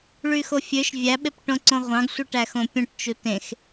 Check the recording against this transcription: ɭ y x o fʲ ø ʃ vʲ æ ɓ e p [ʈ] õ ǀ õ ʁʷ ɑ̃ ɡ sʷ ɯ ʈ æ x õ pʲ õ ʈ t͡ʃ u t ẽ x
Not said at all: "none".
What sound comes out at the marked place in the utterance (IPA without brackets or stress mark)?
ʈ